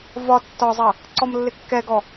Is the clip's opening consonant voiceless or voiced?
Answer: voiced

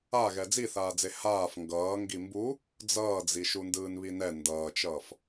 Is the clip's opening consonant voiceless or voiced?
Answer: voiced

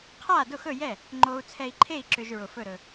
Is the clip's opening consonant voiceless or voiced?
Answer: voiceless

